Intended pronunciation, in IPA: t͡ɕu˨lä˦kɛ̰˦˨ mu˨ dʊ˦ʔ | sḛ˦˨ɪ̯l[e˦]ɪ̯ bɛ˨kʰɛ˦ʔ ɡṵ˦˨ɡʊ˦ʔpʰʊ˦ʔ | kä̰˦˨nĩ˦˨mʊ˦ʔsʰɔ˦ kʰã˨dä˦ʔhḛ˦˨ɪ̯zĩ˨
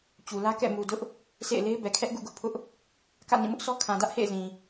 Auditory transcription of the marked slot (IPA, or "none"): e˦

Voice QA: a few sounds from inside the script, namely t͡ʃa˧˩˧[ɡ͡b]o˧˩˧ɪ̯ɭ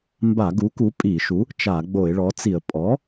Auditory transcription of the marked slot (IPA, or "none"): ɡ͡b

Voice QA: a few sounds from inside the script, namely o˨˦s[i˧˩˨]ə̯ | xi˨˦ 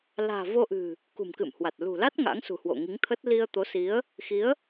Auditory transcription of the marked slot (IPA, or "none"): i˨˦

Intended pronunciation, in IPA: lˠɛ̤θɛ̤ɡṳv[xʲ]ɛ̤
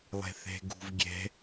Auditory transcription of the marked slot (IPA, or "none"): ɡʲ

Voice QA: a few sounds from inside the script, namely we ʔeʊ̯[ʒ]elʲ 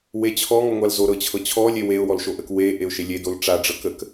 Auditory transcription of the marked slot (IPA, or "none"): ʃ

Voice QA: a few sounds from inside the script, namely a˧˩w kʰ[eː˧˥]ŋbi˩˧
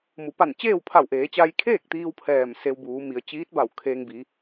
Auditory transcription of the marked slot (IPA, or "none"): eː˧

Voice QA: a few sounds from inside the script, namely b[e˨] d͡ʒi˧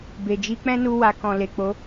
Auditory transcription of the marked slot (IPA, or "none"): e˨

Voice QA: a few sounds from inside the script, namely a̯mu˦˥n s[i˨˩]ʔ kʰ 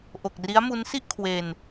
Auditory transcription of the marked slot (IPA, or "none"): i˥˩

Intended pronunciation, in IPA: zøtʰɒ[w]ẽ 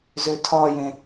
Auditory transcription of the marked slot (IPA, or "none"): j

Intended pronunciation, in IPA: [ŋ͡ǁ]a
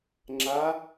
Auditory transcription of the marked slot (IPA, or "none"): ŋ͡ǁ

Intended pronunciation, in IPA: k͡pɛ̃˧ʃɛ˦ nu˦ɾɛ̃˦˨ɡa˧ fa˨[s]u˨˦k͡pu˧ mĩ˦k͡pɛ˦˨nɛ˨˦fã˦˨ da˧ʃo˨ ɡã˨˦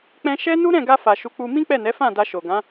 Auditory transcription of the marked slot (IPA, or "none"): ʃ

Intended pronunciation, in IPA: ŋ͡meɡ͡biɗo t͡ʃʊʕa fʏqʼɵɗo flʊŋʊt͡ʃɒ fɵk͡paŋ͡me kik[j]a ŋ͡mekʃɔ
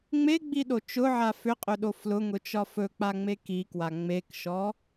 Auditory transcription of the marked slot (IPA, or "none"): w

